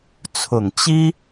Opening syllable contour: low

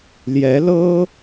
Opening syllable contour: rising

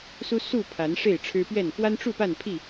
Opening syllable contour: high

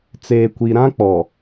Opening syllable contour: low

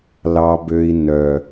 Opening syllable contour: high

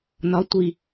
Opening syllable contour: rising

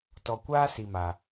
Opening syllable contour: low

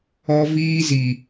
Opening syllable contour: high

